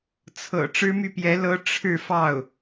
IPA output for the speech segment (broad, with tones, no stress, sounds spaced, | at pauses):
t͡sʰ ɤ̰˨˩ ʈ͡ʂ ɻ̩˥ m y˥˩ p j ɛ˧˥ l ɤ˥ ʈ͡ʂʰ ɻ̩˥˧ f ɑ˥˩ ʊ̯